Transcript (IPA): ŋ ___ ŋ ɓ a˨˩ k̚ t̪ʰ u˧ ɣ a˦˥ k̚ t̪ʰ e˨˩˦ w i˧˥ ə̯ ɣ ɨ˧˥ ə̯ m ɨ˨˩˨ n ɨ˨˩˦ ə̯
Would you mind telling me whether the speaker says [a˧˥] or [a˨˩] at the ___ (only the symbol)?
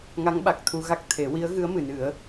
a˧˥